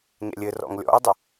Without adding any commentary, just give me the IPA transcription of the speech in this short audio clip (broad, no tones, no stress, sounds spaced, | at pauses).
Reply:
ɲ ɛ̰ lʲ ɘ r ɔ̰ ŋ lʲ ɔ̰ e̯ dˤ ə